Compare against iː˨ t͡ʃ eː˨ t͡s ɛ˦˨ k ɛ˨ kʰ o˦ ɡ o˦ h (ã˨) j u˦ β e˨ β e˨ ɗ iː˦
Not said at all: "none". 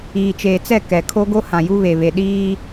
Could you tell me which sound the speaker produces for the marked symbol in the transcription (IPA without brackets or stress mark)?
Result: ã˨